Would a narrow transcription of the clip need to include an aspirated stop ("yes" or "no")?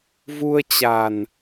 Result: no